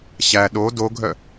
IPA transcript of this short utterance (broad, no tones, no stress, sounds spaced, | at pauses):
ɕ æ ɗ o d o ɡʱ œ